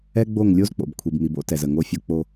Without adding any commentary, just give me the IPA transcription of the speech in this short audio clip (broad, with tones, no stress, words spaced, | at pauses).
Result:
ɛ˦ɡ͡bo˦˨ŋ lʲo˦zk͡po̰˨b kʷʰi˨bmi˨bo̰˦ tɛ˨zə˨ŋo˦fʲo˦ k͡po˦